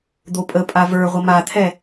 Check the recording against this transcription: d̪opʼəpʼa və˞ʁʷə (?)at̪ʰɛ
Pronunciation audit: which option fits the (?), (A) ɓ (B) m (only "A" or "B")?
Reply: B